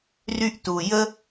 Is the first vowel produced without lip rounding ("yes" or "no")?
no